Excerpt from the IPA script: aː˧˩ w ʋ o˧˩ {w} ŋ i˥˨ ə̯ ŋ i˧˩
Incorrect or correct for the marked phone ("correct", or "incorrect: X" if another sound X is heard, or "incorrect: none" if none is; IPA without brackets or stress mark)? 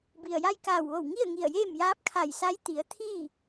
correct